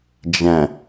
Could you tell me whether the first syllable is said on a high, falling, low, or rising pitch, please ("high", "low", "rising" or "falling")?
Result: low